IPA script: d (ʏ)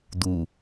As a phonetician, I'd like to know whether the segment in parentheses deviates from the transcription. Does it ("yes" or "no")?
yes